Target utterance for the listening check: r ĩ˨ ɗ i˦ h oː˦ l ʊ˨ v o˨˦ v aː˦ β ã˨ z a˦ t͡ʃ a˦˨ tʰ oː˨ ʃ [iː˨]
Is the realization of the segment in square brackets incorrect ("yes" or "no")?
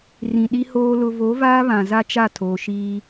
yes